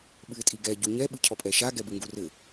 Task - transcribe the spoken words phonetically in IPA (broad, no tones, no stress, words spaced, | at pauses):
ɓɨɪ̯tʼiɡɛ ɟuɲɛ ɓɨcʰɔpʼɛʃa ɡɛbɨŋɡurɘ